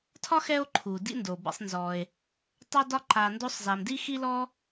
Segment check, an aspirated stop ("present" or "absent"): present